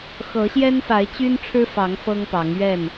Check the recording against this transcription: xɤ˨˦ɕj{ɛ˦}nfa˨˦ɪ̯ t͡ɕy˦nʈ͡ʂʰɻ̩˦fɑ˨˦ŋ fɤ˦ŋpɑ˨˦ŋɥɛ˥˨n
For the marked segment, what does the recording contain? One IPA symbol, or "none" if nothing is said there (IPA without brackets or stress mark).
ɛ˦